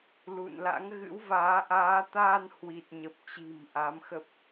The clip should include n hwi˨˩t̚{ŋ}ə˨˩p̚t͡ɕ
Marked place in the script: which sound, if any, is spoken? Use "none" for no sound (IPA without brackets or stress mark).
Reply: ɲ